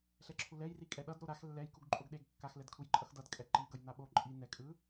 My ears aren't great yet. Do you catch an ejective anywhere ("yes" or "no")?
yes